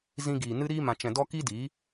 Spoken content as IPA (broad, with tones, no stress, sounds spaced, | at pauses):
z ĩ˧ ɡ iː˨ n ɨ˦ ɾ iː˧ m ã˨ t͡ʃ ɛ̃˨ d ɔ˧ k i˦ d iː˨˦